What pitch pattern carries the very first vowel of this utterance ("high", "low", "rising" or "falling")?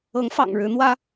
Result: rising